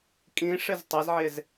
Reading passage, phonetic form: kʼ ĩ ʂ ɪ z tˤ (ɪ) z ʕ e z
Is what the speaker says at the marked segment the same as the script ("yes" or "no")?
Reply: no